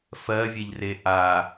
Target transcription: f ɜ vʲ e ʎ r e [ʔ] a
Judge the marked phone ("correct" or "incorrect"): correct